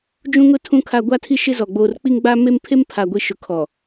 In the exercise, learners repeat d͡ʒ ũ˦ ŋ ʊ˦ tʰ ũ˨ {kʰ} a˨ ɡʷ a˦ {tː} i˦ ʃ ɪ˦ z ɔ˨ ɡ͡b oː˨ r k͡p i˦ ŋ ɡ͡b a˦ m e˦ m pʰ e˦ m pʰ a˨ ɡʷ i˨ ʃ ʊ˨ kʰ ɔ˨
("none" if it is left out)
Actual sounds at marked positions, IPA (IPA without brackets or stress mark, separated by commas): kʰ, tʰ